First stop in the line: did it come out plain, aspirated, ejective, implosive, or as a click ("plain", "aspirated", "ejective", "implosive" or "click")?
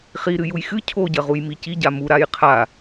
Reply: aspirated